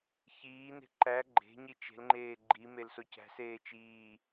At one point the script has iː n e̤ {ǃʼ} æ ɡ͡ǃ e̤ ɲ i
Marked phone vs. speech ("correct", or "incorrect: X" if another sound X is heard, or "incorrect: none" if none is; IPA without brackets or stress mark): incorrect: ǃ